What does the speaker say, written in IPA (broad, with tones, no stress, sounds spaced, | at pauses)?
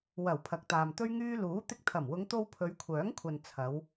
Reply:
w ɐ˨˩ w pʰ ɐ˨ k̚ t̪ aː˨ m t̪ ɵ˥ ɥ ŋ yː˥ l uː˨˥ t̪ ɪ˧ k̚ t̪ʰ ɐ˨˩ m w ʊ˨˧ ŋ t̪ o˧ w pʰ ɵ˨˧ ɥ kʷʰ œː˨˥ ŋ kʷʰ ɐ˨ n t͡sʰ ɐ˨˧ w